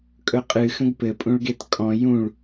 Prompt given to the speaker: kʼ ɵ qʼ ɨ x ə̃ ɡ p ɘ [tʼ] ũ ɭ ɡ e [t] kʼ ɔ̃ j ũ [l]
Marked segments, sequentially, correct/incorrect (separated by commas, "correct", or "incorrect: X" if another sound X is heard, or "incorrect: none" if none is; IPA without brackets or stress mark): incorrect: pʼ, correct, incorrect: ɭ